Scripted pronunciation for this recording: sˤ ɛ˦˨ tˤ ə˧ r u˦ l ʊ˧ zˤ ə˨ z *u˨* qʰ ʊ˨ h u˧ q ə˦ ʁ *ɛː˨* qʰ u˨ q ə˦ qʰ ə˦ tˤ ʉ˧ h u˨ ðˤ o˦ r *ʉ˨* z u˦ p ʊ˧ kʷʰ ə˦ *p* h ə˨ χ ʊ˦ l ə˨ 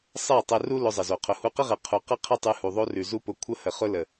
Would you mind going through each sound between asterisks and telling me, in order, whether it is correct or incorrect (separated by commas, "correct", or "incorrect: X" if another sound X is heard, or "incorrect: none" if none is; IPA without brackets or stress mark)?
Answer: incorrect: o˨, incorrect: ɛ˨, correct, incorrect: none